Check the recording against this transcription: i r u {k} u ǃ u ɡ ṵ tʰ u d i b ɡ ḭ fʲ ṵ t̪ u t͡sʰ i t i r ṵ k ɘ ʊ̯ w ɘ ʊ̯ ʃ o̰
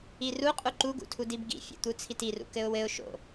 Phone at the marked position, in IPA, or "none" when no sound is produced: qʼ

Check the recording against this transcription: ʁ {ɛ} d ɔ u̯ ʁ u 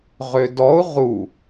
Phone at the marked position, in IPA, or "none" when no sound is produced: ʏ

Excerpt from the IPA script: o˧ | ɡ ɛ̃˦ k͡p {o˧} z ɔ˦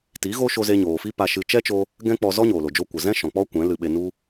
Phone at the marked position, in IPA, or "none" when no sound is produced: ɔ˧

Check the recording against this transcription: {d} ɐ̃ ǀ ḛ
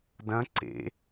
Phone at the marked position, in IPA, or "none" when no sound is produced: d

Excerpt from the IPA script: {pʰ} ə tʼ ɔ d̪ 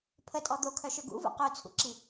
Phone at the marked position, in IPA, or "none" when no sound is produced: pʰ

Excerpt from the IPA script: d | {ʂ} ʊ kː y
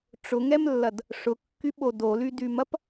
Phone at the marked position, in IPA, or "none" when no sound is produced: ʂ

